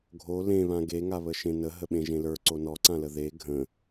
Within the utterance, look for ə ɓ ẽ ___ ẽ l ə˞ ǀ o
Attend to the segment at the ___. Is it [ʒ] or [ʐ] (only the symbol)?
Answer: ʒ